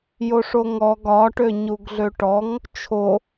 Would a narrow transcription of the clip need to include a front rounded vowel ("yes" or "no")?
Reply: yes